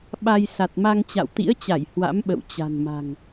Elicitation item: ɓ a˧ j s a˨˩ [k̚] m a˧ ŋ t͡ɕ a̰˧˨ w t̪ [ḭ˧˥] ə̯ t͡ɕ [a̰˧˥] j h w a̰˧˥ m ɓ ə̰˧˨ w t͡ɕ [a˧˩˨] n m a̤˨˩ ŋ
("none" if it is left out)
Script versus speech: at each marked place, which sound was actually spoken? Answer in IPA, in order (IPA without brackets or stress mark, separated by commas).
t̚, ḭ˧˥, a˧˩, a̤˨˩